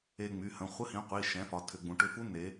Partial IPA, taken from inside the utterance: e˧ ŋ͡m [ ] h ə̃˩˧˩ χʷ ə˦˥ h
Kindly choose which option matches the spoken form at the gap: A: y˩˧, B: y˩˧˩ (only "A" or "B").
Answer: B